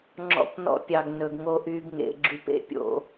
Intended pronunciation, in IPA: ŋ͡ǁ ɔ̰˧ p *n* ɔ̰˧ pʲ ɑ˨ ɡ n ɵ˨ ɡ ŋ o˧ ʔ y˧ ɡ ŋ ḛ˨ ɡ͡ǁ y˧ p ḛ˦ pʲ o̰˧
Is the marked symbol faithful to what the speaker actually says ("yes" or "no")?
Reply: yes